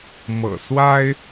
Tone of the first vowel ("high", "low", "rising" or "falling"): low